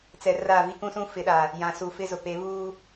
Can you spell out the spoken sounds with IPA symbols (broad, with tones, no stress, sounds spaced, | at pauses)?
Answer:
t͡s ɛ˨ r a˦˨ v i˦ k ũ˦ s ũ˦ f ɪ˨˦ ɗ a˨ | j ã˨ s u˨ f ɪ˦ z ʊ˨ p e˨˦ β uː˦